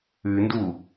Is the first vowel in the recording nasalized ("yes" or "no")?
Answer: no